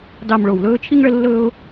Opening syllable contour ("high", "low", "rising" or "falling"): low